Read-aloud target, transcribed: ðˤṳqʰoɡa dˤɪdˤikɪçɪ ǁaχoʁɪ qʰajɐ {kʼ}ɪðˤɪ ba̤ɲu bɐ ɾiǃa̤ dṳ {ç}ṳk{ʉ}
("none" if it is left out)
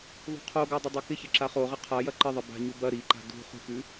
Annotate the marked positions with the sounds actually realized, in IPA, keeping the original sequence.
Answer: ǃ, χ, ʉ

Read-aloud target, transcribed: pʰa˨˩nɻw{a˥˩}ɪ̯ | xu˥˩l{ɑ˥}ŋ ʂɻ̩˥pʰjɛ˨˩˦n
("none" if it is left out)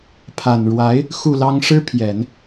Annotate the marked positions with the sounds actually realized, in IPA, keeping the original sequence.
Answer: a˧˥, ɑ˥

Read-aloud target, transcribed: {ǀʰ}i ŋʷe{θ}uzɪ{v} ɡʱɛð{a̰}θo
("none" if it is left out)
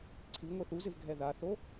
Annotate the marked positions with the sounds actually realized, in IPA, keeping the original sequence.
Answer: ǀʰ, θ, v, a

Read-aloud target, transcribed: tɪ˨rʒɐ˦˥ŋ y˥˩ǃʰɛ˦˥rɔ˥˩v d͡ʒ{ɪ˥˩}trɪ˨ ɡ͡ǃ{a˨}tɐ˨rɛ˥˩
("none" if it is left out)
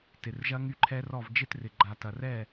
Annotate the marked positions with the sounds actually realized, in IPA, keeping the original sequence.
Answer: ɪ˥˧, a˨

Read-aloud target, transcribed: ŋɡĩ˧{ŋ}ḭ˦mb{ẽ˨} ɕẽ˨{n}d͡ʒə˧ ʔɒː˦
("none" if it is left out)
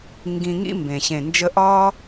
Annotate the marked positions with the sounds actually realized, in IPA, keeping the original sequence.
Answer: ŋ, ẽ˨, n

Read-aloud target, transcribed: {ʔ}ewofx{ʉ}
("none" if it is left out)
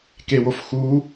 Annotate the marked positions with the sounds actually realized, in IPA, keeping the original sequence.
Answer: k, u

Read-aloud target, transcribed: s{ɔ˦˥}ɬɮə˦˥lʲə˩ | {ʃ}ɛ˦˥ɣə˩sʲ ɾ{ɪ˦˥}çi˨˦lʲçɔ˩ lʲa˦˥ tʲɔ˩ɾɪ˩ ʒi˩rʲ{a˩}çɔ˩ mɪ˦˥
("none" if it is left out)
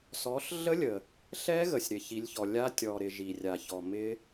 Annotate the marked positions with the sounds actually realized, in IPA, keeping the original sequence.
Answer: ɔ˨˦, ɬ, ɪ˩, a˩

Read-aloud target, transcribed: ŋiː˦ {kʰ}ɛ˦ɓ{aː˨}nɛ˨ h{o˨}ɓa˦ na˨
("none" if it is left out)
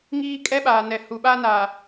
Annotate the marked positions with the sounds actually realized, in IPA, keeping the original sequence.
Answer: kʼ, aː˨, u˨

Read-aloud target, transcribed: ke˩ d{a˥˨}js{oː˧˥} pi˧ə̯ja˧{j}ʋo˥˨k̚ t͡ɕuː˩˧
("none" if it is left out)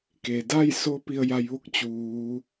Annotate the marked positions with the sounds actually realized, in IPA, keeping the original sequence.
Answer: a˥˨, o˧˥, j

